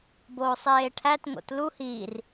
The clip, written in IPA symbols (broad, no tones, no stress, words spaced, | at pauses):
boːsˤeːʈʰæt ŋo̰tlu hiːr